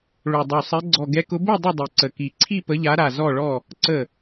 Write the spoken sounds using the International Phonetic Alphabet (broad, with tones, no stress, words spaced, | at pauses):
ɭo˨˩dˤo˨˩sˤɛ˨˦ ɡ͡ǀɔ˨˩ɡɛ˨˦kʊ˨˦ bo˥˨ dˤʊ˥˨dˤi˨˩ǀə˨˩ ki˨˩ǀʰi˥˨ pə˨˦ʎa˨˦ɾa˨˩ zɔ˥˨ɭɔ˥˨ | ǀə˥˨